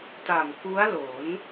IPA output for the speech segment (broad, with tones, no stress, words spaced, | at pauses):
ta˨˩mku˦˥a̯ lo˩˦n